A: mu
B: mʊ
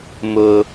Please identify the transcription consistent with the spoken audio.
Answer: B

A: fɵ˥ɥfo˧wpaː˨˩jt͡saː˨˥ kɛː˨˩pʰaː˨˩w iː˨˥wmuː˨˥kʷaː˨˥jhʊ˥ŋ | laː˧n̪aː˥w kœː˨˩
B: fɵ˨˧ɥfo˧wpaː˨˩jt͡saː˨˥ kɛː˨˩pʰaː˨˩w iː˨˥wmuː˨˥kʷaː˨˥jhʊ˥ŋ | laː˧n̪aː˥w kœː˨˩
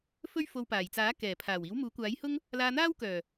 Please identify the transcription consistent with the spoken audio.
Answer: A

